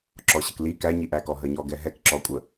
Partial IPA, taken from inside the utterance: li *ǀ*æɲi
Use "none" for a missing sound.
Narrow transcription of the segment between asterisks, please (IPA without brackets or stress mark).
k